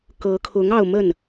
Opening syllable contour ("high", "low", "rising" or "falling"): rising